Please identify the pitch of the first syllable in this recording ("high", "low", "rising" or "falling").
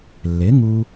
rising